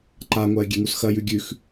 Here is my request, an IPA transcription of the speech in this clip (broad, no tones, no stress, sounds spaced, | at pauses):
ǃ a ŋʷ a ɪ̯ ɡʲ e ŋ u s x ɐ j ʉ ɡʲ ʉ x